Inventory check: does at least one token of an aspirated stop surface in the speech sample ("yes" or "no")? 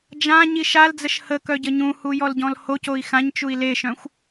no